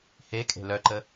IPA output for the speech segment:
h e kʼ e̤ l œ ǃ ə

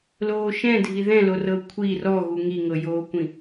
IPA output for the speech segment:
l oː ʃ ɛ̃ dʱ i ð ɛ̃ l o r ɤ kʷʰ i r ɔ ɣ u ŋ i ŋ ɤ j oː kʷ ĩ

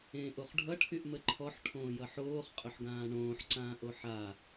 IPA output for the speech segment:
ẽː ʔ o χ ɖʱ ʌ ʈʰ y ʔ m ə ǃʰ ɔ ħ ʈʰ õː j ʌ ħ oː χ qʼ ɵ ħ ɡ ãː ɳ õː ħ ǀ ãː ʔ o ħ a

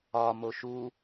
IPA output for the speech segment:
ɒ m o ʃ u

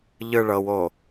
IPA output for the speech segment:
ʎ ɯ ɭ ɤ w o

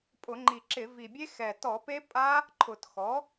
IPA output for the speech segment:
pʼ ʊ˧˩˧ ŋ͡ǃ i˨˩ ǁ ɪ˧˩˧ v i˨˩ bʲ e˦˥ x ɛ˨˩ t ɔ˧˩˧ p e˦˥ pʼ a˦˥ | ǃʰ ʊ˨˩ t x ɔ˩˥

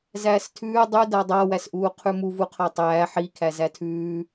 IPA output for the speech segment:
z æː s tʰ ʉː dˤ ʉ d a dˤ a w æ s ʔ uː qʰ ʉ m u v u qʰ a tˤ æː ħ i kʰ æ z æ tʰ ʉː

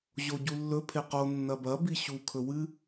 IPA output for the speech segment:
ʑ o ɟ u lː ɵ pʰ e q o nː ɐ b ɐ b i ɕ u kʰ ɵ w ɨ

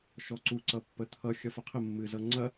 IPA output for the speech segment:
ʃ ɔ ǀ u ǀ ʌ pː ə t̪ʰ ʌ xʲ ʌ f ɐ qʰ ə mː ɨ z ʌ ŋ͡ǀ ɐ

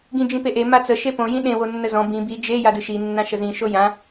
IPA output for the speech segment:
ɡ ĩ d͡ʒ ĩ p e ʔ e m a t͡s ə ʃ e p õ j ĩ ɗ ẽ w o nː ə z ɔ̃ b ĩ b i d͡ʒ e j a d ɨ ʃ i nː ã ʃ ə z ĩ ʃ o j ã

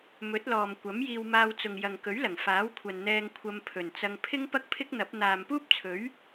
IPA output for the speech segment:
m ɵ˨˥ t̚ l ɔː˨ m kʷ ɐ˨˥ m j iː˧ w m aː˧ w t͡s ʊ˨ ŋ j ɐ˨ ŋ k ɵ˨˥ ɥ l ɐ˨˩ ŋ f aː˨˥ w kʷʰ ɐ˨ n n̪ ɛː˧ ŋ kʷʰ ɐ˧ m pʰ ɵ˨˩ n t͡s ɐ˧ ŋ pʰ ɪ˥ ŋ p ɐ˥ k̚ pʰ ɪ˥ k̚ n̪ ɐ˨˥ p̚ n̪ aː˨ m p uː˥ p̚ t͡sʰ ɵ˨˥ ɥ

